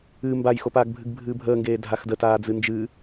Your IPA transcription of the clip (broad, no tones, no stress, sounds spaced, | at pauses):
ɨ m b a j x o p aː ɡ bʱ ɨ ɡ bʱ ɨː bʱ əː ŋ ɡ eː dʱ a x d ə t aː d͡z ɨ n d͡ʒ ɨ